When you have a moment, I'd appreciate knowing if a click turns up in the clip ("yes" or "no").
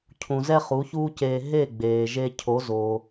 no